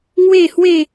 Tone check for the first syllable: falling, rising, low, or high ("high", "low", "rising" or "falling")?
falling